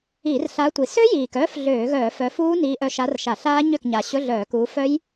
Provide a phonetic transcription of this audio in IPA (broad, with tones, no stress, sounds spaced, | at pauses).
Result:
i˧˩˧ r ɬ a˨˦ tʷ i˨˩ s ø˦˥ j iː˨˩ k œː˦˥ f ɮ øː˧˩˧ ɣ œː˧˩˧ f œ˨˦ f uː˦˥ n iː˨˦ ʔ œ˨˦ ʃ a˨˦ r ʃ a˧˩˧ ɬ aː˦˥ ɲ ø˥˩ k ɲ a˨˩ ɕ ɵ˧˥˧ ɮ œː˧˩˧ k uː˨˦ f œ˦˥ j